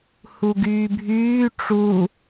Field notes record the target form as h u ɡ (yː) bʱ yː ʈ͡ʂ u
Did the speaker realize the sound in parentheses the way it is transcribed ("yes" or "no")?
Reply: yes